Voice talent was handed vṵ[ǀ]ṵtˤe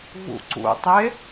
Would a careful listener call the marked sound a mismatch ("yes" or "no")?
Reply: no